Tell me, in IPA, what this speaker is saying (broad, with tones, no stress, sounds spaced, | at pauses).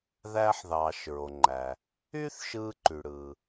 ð æː˧ ħ ð ɑː˩ ʃ ɹ o˩ ŋ͡ǃ æ˩ | yː˥ θ ʃ ɯː˧ ǃ y˩ ɽ ɯː˩